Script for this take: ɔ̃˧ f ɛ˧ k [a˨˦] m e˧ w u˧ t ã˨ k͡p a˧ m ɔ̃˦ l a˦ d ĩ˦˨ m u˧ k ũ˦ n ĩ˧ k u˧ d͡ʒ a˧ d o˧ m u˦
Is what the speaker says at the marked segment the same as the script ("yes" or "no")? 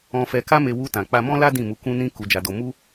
no